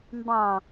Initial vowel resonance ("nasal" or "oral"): nasal